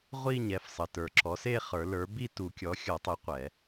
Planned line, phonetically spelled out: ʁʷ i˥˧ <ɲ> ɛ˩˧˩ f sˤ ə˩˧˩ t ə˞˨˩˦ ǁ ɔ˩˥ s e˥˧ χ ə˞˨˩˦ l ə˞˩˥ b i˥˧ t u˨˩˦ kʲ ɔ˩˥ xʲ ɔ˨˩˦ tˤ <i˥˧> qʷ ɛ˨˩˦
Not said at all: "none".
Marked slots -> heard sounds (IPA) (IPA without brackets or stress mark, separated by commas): ɲ, i˩˥